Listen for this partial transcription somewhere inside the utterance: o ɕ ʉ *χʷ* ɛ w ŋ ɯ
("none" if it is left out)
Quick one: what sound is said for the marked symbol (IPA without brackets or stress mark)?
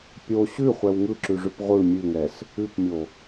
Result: χʷ